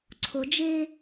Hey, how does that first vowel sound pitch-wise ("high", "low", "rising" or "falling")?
low